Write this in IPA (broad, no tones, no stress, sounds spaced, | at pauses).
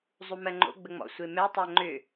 zˤ u m ɜ ŋ͡ǃ o̰ ɡ͡b ə ŋ͡m ɔ̰ sʷ e m ɛ tˤ ɜ ŋ͡ǃ ʏ